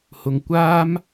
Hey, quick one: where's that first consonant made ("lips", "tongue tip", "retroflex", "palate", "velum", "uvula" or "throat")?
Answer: throat